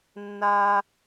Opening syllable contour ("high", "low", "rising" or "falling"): high